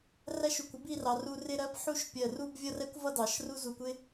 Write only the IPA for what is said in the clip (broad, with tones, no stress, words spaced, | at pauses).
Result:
ræ˥˧ʃu˧˩kʷɪ˥ bi˥˧rɑ˩˧ ru˧rɪ˥˧ɾɜ˥b ħu˥˧ʃpʲɜ˧˩ru˥˧b vʲʌ˥˧rɛ˥kʷvʌ˥˧ dɑ˩˧ʃ ru˥ zu˧˩kʷɪ˥